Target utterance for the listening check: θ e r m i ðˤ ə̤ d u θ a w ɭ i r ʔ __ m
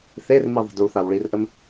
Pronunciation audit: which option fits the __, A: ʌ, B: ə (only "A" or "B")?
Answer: B